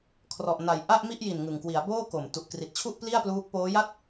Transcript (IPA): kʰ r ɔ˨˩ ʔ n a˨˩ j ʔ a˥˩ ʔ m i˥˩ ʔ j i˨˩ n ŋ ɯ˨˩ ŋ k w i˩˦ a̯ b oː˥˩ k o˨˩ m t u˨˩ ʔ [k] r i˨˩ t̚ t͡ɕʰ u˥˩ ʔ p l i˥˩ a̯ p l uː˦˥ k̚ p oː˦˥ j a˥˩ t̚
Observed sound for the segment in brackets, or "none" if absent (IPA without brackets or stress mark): k